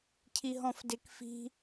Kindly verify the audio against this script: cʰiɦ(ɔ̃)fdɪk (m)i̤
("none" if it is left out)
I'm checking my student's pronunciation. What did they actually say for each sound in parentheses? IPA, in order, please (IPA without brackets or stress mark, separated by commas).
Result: ɔ̃, f